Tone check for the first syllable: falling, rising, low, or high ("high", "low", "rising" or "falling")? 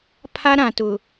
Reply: high